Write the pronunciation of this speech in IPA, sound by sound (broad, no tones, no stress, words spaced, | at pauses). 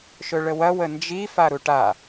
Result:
ʃɵɭəwɐ wənd͡ʒi faɾuʈa